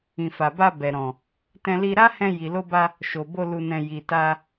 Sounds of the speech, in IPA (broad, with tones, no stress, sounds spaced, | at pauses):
ĩ˨ f a˨ b a˧ b ɛ˨ ɾ ɔ̃˨ | t ɛ̃˧ l i˧ ɾ a˦ h ɛ̃˧ j i˨ l o˧ b a˧ | ʃ o˨ b o˧ l u˨ n ɛ̃˨ j i˨ t a˧